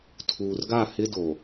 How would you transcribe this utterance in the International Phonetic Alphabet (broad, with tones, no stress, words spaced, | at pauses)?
tʰuː˨rɡa˦˨ hɪ˦do˨